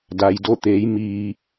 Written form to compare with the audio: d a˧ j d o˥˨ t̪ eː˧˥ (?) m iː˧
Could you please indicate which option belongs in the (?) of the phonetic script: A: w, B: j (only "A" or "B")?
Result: B